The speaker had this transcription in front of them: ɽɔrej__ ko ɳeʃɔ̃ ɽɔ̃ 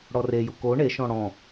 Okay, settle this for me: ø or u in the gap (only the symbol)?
u